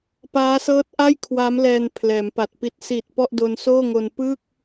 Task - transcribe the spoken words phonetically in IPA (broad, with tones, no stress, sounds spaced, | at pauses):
p aː˦˥ s ɤː˦˥ t̚ ʔ a˥˩ j kʰ w a˦˥ m l ɛː˧ n pʰ l ɛː˩˦ m p a˨˩ t̚ p i˦˥ t̚ s i˨˩ t̚ p ɔ˥˩ ʔ d o˧ n s oː˥˩ ŋ o˧ n p ɯ˥˩ k̚